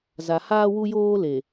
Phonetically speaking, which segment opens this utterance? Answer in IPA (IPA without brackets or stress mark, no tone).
z